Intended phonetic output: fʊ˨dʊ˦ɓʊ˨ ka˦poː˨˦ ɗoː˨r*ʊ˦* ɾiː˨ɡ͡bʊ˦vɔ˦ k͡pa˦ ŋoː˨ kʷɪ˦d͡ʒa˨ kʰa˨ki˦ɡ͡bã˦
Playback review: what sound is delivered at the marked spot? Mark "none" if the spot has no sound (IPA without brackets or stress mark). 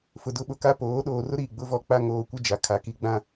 ʊ˦